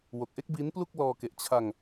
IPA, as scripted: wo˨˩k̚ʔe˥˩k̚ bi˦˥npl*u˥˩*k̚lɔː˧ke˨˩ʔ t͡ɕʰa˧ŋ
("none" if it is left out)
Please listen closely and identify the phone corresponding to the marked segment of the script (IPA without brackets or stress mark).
u˥˩